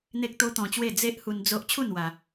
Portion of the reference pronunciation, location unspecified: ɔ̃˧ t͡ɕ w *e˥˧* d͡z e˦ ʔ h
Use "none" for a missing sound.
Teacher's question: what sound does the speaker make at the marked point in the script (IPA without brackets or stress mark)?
e˥˧